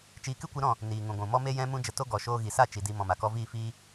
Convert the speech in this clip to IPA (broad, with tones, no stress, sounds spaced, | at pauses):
t͡ʃ iː˧ k ɨ˦ kʷ ɨ˨˦ ɾ ɔ̃˦˨ | n iː˨ ŋ ũ˨ ɡʷ ũ˨ m ɔ˦ m e˦ j ɛ̃˦ m ũ˦ d͡ʒ ə˧ t o˦ ɡ ɔ˨ ʃ oː˧ ɣ i˨ s a˦˨ t͡ʃ i˨ d i˧ m ɔ̃˨ m a˨ k ɔ˧ v iː˦˨ f iː˦